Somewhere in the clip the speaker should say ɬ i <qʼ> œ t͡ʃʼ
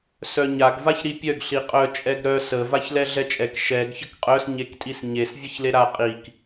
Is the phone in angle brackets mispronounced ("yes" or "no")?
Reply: no